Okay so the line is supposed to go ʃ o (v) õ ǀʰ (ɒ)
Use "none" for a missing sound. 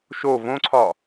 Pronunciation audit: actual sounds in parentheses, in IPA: v, ɒ

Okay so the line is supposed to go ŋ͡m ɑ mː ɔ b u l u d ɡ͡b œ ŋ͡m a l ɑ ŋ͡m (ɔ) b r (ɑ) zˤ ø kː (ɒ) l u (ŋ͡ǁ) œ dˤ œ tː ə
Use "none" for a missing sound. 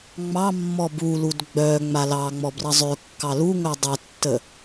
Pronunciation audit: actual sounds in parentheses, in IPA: ɔ, ʌ, ɑ, ŋ

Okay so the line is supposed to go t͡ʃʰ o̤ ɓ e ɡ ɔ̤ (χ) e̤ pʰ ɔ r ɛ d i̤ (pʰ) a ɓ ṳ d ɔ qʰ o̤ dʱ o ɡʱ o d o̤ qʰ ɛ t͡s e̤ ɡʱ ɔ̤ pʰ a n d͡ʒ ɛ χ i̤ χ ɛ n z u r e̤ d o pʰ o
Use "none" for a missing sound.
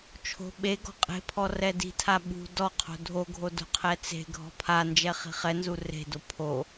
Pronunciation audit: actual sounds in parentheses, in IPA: qʼ, tʰ

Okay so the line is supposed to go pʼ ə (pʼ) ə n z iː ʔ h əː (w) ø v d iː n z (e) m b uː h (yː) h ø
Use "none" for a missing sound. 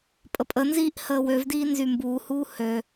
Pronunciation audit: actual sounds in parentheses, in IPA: pʼ, w, y, uː

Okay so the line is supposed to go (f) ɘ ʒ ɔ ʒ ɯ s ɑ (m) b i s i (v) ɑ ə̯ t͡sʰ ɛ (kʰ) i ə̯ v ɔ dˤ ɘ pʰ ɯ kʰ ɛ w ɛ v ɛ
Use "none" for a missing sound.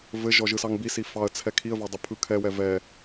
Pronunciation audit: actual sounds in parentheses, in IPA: v, ŋ, f, kʰ

